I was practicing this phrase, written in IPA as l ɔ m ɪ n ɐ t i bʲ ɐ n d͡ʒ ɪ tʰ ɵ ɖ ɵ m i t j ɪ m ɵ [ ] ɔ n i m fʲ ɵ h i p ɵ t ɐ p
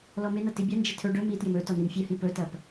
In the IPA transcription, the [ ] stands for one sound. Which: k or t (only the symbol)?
t